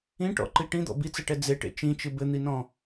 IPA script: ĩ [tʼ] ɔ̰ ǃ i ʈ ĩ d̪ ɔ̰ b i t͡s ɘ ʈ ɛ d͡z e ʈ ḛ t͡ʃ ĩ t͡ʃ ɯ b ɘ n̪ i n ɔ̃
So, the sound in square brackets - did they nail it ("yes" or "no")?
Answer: no